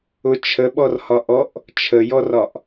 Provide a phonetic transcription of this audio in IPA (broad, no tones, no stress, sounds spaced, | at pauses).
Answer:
ʊ t͡ʃʰ ə ɓ ɔ r h ɒ ʔ ɔ ʔ | t͡ʃʰ ə j ɔ r ɒ ʔ